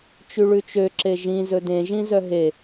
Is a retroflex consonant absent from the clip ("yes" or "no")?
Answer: no